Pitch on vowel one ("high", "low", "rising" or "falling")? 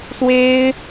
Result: high